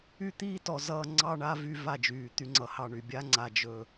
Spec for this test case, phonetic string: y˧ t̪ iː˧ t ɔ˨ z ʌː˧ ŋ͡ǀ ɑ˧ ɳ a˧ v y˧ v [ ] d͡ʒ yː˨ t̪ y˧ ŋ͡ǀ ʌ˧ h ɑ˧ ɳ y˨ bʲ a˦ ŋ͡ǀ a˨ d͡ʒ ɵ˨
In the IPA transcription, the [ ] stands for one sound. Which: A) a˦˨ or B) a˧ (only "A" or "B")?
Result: A